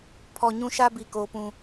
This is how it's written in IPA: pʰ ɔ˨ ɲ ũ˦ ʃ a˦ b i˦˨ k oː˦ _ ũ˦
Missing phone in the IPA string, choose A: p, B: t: A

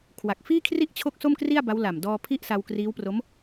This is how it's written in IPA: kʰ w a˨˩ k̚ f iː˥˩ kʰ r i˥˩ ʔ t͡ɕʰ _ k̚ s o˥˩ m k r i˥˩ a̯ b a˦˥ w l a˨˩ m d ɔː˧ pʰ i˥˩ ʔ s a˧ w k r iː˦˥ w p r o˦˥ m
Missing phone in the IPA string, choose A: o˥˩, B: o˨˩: A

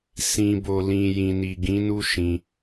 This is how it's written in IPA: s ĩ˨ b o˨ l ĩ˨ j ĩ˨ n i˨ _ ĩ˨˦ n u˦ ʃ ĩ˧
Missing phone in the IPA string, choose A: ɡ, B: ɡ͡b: A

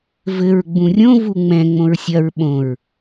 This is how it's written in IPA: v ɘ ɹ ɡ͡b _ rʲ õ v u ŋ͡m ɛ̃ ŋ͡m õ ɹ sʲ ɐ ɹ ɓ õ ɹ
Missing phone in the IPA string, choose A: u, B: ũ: B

